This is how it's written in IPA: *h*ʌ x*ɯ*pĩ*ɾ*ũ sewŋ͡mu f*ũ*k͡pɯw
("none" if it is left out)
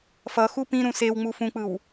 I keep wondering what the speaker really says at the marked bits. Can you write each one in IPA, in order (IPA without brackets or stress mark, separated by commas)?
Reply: f, u, ɾ, ũ